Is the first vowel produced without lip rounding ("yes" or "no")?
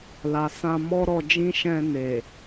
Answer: yes